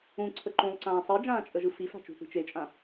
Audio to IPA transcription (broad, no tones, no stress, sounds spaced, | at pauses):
ũ ǀʰ ə ǃ ũ lˠ ǀ ãː sˤ i d͡ʒ ãː t͡ʃʼ ə ʒ ɯ f i f a̤ t͡ʃ ṳ θ i̤ t͡ʃ e t͡ʃʼ ã